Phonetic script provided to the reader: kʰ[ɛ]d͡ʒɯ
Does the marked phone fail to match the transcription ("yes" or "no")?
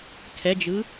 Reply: no